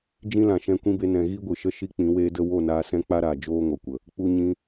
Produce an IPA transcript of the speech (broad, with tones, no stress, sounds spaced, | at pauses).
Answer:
d͡ʒ ĩ˦ l ã˨ ʃ ɛ̃˧ kʷ ĩ˦ b e˧ n ɛ̃˨ ɣ i˦ ɡʷ ɨ˨ ʃ ə˦ ʃ i˦ k͡p ĩ˨˦ w eː˦ d ə˦ w o˦˨ n aː˧ s ɛ̃˦ k͡p a˦ ɾ aː˨ d͡ʒ oː˦ ŋ o˨ kʷ ə˨ | k͡p u˧ ɲ ĩ˧